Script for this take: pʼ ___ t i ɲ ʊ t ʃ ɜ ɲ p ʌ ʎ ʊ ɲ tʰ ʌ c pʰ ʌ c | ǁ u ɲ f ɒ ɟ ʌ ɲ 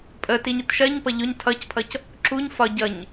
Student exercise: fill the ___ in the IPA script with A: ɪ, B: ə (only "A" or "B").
B